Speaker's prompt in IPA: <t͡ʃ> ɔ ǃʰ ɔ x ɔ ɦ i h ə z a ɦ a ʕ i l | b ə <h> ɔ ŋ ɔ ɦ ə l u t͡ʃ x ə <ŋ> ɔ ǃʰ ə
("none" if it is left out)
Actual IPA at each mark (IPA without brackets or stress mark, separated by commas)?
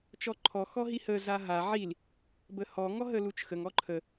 t͡ʃ, h, ŋ